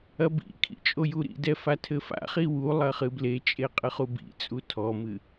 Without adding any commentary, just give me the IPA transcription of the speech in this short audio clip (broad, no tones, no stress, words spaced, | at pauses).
ɐbḭkʰḭ t͡ʃʼojuɾḭdɛ fatʰɘfa̰χi wulˠɐ χɨblet͡ʃʼe qʼɨχubḭt͡sʼu tʰɔmɨ